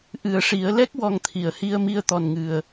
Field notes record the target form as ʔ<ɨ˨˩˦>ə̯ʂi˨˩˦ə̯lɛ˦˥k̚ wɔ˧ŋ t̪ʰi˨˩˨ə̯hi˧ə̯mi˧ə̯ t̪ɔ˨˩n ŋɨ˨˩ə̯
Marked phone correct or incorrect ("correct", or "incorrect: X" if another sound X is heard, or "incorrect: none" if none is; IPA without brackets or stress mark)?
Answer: correct